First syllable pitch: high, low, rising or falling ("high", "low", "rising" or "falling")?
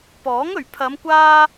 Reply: rising